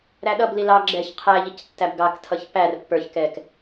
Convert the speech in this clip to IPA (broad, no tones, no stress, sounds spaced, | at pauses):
ɾ æ ɗ ʌ b l i l ɑ ɡ͡ǁ ɛ ç qʰ æ ʎ i c tː æ b ɡ ɑ k tʰ ʌ ç p æ r pː ə˞ ç k ɛ k